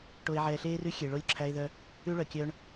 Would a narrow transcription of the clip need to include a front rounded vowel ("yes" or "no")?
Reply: yes